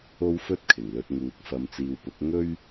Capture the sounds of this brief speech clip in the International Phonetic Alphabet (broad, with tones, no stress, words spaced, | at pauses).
o˥wfɵ˥t̚kʰɪ˨˩ŋlɵ˧t̚ ŋuː˨˥k̚ fɐ˨mt͡siː˨wpʊ˨˥k̚ ŋɵ˥ɥ